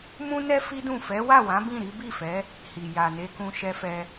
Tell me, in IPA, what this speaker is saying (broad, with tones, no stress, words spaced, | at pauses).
mũ˦nɛ˦ fi˦dũ˦˨ fɛ˨˦wa˦˨wã˨˦ bĩ˦˨ɾi˨˦ bi˦˨fɛ˨˦ | hi˨ ja˨ne˧kũ˧ʃɛ˧ fɛ˧